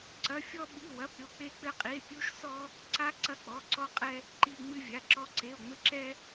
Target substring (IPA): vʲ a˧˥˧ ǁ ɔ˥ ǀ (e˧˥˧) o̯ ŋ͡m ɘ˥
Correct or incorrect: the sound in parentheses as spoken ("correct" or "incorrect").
correct